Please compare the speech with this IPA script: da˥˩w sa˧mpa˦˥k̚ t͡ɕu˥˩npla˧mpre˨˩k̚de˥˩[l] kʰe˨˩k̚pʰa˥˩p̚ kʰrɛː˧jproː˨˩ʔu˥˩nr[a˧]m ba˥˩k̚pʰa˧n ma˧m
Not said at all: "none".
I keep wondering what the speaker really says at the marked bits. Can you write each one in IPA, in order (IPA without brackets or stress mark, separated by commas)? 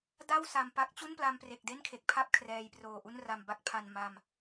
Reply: n, a˧